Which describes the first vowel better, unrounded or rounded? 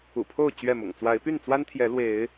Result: rounded